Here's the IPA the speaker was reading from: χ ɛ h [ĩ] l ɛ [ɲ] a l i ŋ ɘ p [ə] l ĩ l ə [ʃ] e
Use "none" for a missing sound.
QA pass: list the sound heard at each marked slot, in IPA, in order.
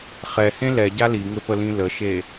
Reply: ẽ, ɟ, ə, ʃ

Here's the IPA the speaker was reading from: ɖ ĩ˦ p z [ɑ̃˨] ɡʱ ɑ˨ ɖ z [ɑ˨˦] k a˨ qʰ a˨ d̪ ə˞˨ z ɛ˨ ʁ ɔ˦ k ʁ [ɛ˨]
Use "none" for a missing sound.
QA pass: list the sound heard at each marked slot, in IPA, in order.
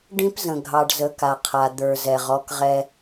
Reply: ə̃˨, ə˨˦, ɛ˦

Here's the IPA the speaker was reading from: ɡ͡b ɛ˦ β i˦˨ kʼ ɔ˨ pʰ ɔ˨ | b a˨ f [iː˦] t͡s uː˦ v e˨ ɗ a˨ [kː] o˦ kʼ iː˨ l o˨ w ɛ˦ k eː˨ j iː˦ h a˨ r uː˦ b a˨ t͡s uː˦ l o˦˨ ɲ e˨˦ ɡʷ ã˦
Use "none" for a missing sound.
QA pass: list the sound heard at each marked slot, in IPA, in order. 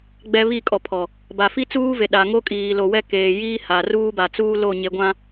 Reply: i˦, ŋ

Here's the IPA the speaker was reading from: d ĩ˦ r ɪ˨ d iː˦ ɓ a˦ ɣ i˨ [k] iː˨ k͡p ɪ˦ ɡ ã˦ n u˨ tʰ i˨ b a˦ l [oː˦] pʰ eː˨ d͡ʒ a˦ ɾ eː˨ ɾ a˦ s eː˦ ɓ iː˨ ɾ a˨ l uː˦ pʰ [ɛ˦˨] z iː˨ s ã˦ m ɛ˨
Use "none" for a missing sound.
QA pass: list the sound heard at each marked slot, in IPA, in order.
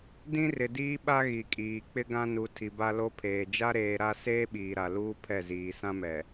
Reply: kʼ, o˦, ɛ˦˨

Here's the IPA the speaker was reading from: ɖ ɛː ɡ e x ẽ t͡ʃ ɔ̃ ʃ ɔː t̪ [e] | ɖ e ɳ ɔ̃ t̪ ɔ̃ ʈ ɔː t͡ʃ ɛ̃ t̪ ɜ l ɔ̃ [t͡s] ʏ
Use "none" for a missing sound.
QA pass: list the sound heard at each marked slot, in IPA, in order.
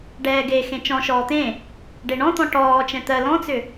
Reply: ẽ, t͡s

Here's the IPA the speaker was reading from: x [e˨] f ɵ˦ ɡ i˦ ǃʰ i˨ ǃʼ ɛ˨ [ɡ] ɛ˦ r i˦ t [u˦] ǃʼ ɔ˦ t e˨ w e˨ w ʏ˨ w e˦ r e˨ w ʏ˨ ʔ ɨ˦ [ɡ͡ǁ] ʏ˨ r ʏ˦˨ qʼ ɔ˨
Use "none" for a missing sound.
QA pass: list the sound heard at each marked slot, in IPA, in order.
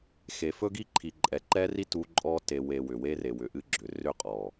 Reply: e˨, ǃ, u˦, ɡ͡ǁ

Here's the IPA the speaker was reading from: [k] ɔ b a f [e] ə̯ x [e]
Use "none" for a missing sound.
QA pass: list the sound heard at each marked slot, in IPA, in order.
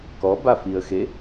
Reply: k, i, e

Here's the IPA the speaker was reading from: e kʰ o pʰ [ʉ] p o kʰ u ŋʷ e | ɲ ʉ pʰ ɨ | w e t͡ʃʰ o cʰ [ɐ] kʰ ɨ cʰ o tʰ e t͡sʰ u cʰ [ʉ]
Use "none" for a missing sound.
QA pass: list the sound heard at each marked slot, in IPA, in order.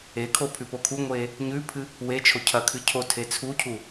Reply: ʉ, ɐ, u

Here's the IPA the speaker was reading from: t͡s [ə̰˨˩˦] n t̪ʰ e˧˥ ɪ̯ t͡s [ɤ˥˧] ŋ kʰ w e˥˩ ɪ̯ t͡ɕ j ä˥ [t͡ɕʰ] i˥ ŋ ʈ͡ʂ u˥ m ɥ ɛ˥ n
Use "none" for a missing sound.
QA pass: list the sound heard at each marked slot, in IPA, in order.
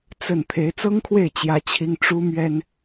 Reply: ə˥˩, ɤ˥, t͡ɕʰ

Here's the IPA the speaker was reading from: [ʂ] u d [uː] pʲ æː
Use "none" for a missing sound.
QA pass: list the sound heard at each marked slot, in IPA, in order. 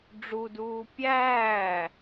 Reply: ɖ͡ʐ, uː

